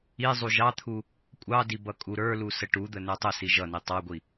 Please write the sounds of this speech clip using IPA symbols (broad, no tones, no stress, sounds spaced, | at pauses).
i zˤ u ʒ ɑ t̪ʰ u | kʷʼ ɑ d i b ʌ kʼ u ɾ ə˞ l u s ə ʈ u d̪ ə n ə˞ tˤ ə s i ʒ ʌ n i tˤ ɑ ɡʷ i